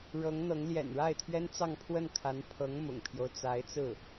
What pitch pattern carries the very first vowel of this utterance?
rising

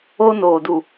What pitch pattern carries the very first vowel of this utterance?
high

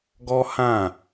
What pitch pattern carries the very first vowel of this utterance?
high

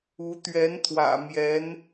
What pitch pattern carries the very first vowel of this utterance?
rising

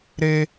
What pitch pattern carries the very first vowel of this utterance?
high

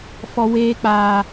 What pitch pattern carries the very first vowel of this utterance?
high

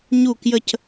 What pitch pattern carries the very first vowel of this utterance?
falling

